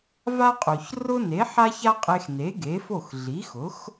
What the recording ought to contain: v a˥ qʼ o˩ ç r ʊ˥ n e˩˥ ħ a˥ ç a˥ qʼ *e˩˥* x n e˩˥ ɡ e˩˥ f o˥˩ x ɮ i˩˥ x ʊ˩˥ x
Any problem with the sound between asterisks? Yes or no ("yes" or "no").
yes